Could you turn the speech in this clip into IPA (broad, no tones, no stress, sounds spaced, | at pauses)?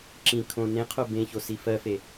ǁ ĩ kʰ õ n ẽ qʰ o b ẽ ç o s i f ɜ f e